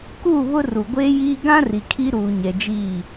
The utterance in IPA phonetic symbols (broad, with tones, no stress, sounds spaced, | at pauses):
k u˦˨ β ʊ˦ r u˨ ɡʷ eː˦ j iː˦ ɡ ã˦ r i˨ kʰ i˦ ɾ uː˨ ɲ ɛ˨ d͡ʒ iː˦˨